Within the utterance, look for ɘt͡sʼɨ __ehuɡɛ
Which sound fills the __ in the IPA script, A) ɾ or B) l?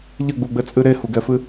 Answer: A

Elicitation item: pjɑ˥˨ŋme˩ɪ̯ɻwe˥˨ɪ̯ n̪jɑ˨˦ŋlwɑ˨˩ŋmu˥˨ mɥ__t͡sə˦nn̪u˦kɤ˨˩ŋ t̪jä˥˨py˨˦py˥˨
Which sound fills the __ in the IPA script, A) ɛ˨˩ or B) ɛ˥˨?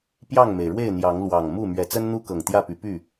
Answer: A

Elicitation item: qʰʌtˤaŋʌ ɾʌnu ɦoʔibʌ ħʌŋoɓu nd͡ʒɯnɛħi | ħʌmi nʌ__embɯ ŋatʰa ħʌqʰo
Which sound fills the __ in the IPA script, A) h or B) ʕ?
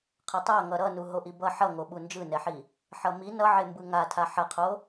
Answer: B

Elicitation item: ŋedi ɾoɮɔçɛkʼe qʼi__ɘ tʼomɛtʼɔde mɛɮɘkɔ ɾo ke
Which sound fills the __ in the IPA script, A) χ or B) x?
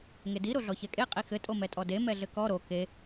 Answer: B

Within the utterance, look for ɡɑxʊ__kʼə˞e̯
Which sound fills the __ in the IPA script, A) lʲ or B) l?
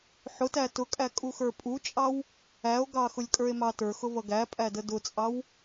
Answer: A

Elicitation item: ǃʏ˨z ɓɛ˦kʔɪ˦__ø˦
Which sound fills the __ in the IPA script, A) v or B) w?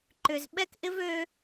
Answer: A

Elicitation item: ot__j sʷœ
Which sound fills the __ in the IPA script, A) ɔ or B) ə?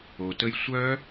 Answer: B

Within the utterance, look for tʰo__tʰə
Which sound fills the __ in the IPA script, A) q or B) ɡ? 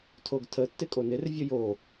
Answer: B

